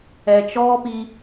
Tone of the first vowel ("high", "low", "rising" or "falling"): low